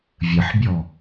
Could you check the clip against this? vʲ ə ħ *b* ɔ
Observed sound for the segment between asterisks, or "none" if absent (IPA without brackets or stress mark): bʲ